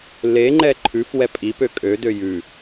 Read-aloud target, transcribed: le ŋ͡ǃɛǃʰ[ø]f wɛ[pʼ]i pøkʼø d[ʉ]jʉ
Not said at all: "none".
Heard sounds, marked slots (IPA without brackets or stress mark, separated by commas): ʉ, pʼ, ø